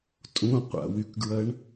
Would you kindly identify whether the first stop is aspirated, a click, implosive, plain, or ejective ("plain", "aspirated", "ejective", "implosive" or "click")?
ejective